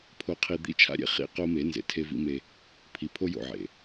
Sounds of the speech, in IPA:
pʰ o˨ qʰ i˨ d̪ ḭ˦˨ t͡ʃʰ a̰˦ ɾʲ ḛ˨ χ ḭ˦˨ q o˦ m e˨˦ n z ḛ˨ tʰ e˦ v ḭ˦ m e˦ | pʰ i˨ pʰ o˦ j o̰˨ ʕ ḛ˨

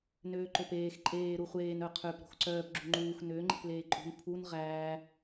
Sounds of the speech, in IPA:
n øː ǃ o p eː x ǃʼ eː ɾ u χʷ eː n œ qʰ ø p ɾ o̤ x ǀ œː p ɡ͡ǁ u ŋ͡ǃ uː x n ø ŋ͡ǃ e̤ p l eː ǃʼ ṳ n pʰ u n ʁ æː

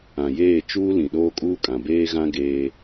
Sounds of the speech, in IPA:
ã˨ j eː˦˨ t͡ʃ uː˦ l ĩ˨ ɗ oː˦ kʼ uː˦ kʼ ã˨ b eː˦ ɣ ã˦ ɡ eː˦

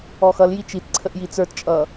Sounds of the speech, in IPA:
ɔ x ʌ l j i t͡ʃ i t ǀʰ ə ʔ j i t͡s ə˞ t t͡ʃʼ ʌ

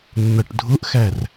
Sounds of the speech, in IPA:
nː ʌ ʈ dʱ ʊ ʔ x æ r

